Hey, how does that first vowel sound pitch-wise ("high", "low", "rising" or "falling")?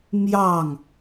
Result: falling